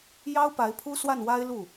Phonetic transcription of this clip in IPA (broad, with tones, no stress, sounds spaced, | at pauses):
j ɑ˥ ʊ̯ p a˧˥ ɪ̯ pʰ u˥ s w a˥˩ n w a˥ ɪ̯ l u˥˩